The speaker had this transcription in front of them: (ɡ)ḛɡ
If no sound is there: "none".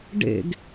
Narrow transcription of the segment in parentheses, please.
ɖ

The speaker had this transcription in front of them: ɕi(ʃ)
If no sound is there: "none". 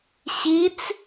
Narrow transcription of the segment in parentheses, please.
t͡s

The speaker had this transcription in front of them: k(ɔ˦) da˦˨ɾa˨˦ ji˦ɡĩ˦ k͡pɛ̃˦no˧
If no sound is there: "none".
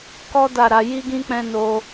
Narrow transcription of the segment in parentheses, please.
ɔ˦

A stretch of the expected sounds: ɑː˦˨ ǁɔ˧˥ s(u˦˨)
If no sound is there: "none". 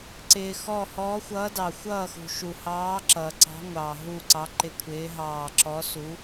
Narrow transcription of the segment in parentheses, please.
u˧˥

